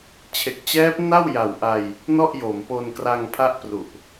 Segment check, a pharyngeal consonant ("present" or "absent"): absent